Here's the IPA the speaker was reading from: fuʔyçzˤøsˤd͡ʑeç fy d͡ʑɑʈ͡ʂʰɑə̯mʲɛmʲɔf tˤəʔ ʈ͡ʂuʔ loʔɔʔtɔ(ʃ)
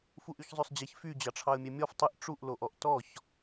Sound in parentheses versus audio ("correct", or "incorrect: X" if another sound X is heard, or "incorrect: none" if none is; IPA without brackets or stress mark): incorrect: ç